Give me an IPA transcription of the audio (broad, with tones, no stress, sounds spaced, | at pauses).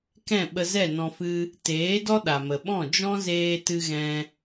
k ɛ̃˦˨ ɓ ə˧ z ɛ˦˨ n ɔ̃˧ f ɨ˦ | t eː˨˦ d ɔ˦ ɗ a˨ m ə˨ ɓ ɔ̃˦˨ d͡ʒ ɔ̃˦ z eː˧ t ɨ˧ ɣ ɛ̃˧